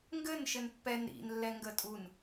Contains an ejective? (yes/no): yes